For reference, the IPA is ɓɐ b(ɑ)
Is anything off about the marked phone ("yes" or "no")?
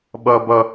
yes